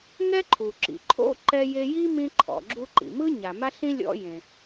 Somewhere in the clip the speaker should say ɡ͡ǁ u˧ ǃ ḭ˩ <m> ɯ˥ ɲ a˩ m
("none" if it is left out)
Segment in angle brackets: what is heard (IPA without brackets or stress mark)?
m